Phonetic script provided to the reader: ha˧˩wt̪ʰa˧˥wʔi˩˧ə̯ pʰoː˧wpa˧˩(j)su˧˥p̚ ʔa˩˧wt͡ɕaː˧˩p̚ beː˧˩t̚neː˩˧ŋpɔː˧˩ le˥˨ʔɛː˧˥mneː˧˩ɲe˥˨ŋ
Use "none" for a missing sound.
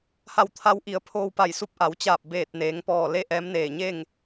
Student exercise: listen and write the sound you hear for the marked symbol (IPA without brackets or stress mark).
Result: j